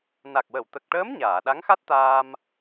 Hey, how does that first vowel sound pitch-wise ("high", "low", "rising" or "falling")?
low